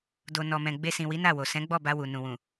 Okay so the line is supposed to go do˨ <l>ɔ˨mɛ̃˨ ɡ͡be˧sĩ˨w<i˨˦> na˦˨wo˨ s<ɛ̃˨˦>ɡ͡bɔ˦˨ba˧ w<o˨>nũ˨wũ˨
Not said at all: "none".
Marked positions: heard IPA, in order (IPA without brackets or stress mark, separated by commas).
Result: n, i˨˦, ɛ̃˨˦, u˨